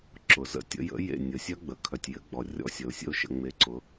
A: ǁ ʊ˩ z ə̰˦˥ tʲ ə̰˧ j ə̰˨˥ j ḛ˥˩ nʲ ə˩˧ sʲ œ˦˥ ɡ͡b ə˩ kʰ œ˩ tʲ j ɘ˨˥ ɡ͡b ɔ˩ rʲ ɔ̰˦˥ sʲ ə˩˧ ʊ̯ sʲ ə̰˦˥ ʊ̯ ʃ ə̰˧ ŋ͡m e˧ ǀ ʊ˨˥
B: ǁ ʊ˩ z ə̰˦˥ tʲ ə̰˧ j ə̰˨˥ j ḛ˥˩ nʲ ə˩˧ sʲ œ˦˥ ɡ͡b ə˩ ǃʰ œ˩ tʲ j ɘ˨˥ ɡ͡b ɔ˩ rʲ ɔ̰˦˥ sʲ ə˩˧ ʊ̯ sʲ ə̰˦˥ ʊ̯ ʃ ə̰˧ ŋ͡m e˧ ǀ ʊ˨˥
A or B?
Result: A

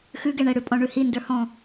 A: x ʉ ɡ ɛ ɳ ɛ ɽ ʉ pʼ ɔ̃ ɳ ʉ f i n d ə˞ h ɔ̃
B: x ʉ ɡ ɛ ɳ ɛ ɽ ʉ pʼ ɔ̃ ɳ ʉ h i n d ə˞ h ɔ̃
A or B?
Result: B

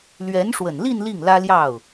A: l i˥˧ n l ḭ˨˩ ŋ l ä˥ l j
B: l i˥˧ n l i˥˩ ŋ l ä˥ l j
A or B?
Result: B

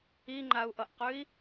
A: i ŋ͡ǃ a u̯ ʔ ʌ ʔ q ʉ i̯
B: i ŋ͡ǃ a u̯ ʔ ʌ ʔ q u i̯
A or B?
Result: A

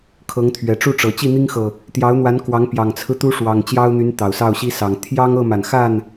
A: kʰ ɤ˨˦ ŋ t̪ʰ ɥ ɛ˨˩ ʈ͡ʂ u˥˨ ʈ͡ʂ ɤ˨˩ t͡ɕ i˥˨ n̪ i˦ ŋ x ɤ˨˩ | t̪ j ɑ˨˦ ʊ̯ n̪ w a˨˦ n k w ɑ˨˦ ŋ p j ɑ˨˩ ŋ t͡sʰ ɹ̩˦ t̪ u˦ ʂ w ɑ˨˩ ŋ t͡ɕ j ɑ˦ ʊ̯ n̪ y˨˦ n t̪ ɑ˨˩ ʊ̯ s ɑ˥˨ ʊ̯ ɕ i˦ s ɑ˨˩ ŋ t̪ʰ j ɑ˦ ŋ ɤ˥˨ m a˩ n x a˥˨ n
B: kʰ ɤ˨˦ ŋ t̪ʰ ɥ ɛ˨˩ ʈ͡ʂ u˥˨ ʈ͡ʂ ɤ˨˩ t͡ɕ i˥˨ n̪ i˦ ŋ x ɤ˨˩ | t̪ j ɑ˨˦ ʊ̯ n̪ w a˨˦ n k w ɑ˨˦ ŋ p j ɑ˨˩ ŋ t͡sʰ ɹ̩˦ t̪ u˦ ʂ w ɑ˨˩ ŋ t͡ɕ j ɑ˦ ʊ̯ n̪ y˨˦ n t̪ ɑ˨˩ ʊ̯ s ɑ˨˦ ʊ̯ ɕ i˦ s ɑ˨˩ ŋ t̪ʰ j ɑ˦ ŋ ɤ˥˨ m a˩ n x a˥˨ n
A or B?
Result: A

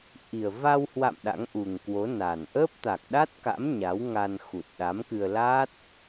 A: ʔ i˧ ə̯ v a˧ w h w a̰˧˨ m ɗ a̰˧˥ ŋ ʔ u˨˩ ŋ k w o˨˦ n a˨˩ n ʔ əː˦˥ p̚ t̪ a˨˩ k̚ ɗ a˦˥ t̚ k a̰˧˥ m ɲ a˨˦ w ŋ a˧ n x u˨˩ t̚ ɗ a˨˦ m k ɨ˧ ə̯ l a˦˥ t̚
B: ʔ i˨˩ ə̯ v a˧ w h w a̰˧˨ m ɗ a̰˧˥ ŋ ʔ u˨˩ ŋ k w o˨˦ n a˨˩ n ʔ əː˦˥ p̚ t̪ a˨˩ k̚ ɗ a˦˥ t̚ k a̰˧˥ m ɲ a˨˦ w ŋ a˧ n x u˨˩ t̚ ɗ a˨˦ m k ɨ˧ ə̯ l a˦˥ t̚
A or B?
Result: B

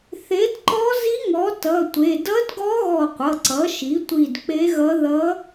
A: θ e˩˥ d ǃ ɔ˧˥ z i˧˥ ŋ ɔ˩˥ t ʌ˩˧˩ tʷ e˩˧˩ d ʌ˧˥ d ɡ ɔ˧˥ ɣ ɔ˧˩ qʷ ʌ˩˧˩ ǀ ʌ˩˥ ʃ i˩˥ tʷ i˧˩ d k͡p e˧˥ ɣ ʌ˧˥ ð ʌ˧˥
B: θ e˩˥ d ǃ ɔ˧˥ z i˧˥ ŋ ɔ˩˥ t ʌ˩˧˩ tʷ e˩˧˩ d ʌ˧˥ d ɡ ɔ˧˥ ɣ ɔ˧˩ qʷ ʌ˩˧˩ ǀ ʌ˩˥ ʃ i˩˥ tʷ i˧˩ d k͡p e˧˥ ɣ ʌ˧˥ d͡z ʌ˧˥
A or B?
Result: A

